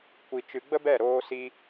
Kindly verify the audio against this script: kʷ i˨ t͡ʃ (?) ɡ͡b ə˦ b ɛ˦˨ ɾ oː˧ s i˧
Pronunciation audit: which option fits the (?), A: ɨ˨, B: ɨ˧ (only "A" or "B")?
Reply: A